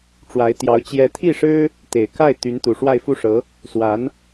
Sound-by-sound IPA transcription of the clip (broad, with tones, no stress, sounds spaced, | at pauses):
ʈ͡ʂ w a˧˥ ɪ̯ t̪ j ɑ˧˥ ʊ̯ t͡ɕ j ɛ˧˥ t̪ʰ i˥˩ ʂ ɻ̩˥ | t̪ e˨˩ ɪ̯ k a˥˩ ɪ̯ t̪ y˧˥ n t̪ u˨˩ ʂ w a˥˧ ɪ̯ f u˥˩ ʂ ɤ˧˥ | s w a˧˥ n